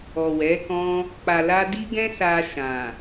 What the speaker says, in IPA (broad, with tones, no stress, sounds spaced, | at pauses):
ɔ˨ w ɛ˨˦ k ɔ̃˦ | k͡p a˨ l a˧ d i˦ ɡ ɛ̃˦ s a˧ ʃ ã˨